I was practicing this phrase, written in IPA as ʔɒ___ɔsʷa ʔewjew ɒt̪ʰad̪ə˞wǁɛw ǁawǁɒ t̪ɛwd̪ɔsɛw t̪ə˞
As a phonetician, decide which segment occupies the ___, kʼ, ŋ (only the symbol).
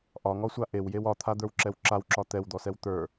ŋ